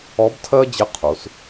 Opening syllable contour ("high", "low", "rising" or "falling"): rising